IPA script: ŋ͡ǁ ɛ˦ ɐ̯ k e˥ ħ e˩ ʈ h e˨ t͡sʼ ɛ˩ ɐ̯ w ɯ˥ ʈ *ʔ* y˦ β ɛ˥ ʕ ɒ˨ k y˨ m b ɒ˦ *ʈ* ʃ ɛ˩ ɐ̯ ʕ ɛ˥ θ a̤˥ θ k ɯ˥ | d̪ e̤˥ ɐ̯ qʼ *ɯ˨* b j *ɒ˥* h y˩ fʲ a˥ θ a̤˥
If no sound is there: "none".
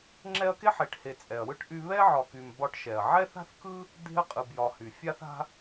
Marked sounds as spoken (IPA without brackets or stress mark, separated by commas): ʔ, ʈ, ɯ˨, ɒ˨